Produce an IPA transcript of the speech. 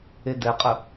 e d ɛ qʼ ə

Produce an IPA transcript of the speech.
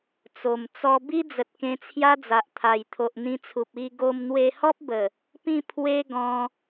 t͡s o˨˩ m t͡s ɔ˧ b i˦ d͡z ə˨ t̚ k ẽ˧ t͡sʰ j a˦ d͡z a˨ ʔ t̪ʰ a˨˩ j t̪ʰ o˨ ʔ n̪ ĩ˧ t͡sʰ u˨ p̚ i˧ ɡ o˧ m n̪ w e˧ h ɔ˦ p̚ b ə˨˩ | p ĩ˥˧ pʰ w e˦ ɡ ɔ̃˧

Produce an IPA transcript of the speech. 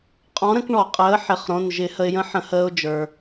qʼ ɔ̃˨˥ ɾ ə̃˨˥ k ɳ ɔ˧˩˧ qʼ əː˨˥ ħ ɪ˩˧˩ χ ɾ õ˩˧˩ n ʒ ɪ˧˩˧ h ə˧ ɪ̯ j ə̃˦˥ ħ ə̃˧˩˧ h əː˧ ʊ̯ d͡ʒ ə˞˩

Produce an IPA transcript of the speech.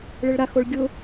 ɭ ɪ ɭ ɾ a x o ɭ ɡʲ ʊ

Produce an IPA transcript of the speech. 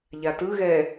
ʎ a t ɯ ɣ ɛ

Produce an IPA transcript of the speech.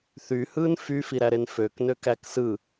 θ y h ɯː n f y f i ɾ æ ɾ e n f ø k n ø k æ k s ɯ

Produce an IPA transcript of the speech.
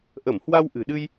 ʔ ə˧˩ m h w a˧ w ʔ ɨ̤˨˩ ɗ ɨ˧ j

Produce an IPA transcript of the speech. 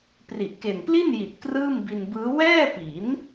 p r i˨˩ ʔ k e˨˩ n p l i˥˩ n j i˨˩ t̚ k r ɯː˥˩ m b i˧ n b ɯː˦˥ w ɛː˥˩ p i˩˦ n

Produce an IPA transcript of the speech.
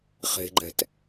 χ e̤ ɡ͡ǃ ɛ̤ t

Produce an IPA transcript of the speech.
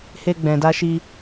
h e˧ ɡ͡b ɛ̃˨ d a˧ ʃ i˧

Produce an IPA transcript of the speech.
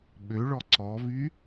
ɓ ø ɭ ɔ ǀ ɔ v y

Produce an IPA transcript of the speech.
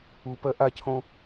u p ɜ ʔ a cʰ õ

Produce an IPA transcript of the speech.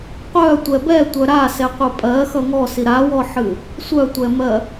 qʷ œ tʷ ɛ b ɛ tʷ œ ɾ a s ɛ qʷ ɨ pʼ ɜ x ʌ ŋ ɔ s i ɾ a w ɔ ħ ɨ | sʷ œ tʷ ɛ m ɜ

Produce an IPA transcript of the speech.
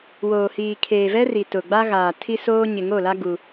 w oː˨ h iː˨ kʰ eː˨ v ɛ˦ r i˨ t ʊ˨ ɡ͡b a˦ ɣ aː˨ tʰ i˦ s oː˦ ɲ ɪ˨ ŋ o˦˨ l a˦ ɡ u˦

